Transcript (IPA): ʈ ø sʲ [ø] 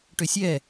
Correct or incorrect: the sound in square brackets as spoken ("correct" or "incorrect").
incorrect